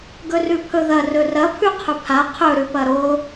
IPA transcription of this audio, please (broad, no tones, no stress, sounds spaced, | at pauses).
ɡ ɵ r ʉ pʰ ɵ ð ɐ r ɵ r ɐ pʰ ʉ qʰ ɵ pʰ a qʰ ɵ ɾ ʉ p ɐ ɾ o